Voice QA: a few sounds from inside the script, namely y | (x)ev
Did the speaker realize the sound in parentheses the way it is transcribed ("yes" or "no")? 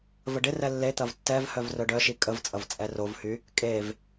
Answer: no